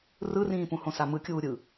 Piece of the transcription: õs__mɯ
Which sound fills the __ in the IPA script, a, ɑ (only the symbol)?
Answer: a